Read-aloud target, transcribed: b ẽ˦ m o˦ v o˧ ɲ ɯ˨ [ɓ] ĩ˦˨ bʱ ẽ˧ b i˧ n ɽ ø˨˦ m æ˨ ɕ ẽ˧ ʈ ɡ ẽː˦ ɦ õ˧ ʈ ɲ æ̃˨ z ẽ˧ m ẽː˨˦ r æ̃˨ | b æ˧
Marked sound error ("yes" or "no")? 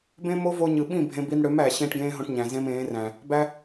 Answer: no